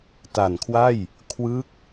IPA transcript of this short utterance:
t a˨˩ n kʰ w a˥˩ j | kʰ w ɯ˦˥ k̚

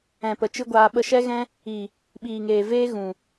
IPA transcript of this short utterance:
ɛ̃˨ p ə˨ t͡ʃ ɨ˦ ɡʷ aː˧ ɓ ə˧ ʃ ɛ˦ ɣ ɛ̃˦ | i˨ | ɓ iː˨ ŋ eː˨ v eː˦ ɣ ũ˨

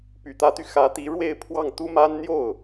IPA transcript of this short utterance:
p y˨˩ t̪ ä˧˥ t̪ y˧ x ä˧˥ t̪ i˧˥ ɻ w e˥˧ ɪ̯ pʰ w ɑ˥˩ ŋ t̪ u˥ m a˥ n n̪ j o˥˩ ʊ̯

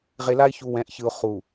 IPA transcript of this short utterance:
ʁ e˨ l a˦ ɪ̯ ç u˨ w ɛ̃˨˦ ʔ ç ɯ˨ ʊ̯ χ u˨

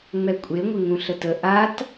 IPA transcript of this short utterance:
ŋ͡m ɛ kʷʼ e ŋʷ ɪ ŋ ũ ɬ ə t ə ʔ a t

